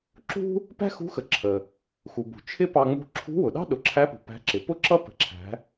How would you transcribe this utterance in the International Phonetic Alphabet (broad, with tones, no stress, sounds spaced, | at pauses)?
ǁ ṳ˥ | p æ̤˥ x ṳ˧˥ x ə˩ ǁʰ ə˩ | x u˩ b ṳ˩ t͡ʃʰ ɪ˥ p ɑ˧ ŋ͡m ṳ˧ ǁʰ ṳ˧˥ w ʊ˩ ɗ ɑ̤˥ ɗ ʊ˩˧ ǁʰ æ˧˥ p ṳ˩ p æ̤˧˥ ǁ ɪ˩˧ p ʊ˥ ǁ ʌ˥ p ə̤˩˧ ǁʰ æ̤˩˧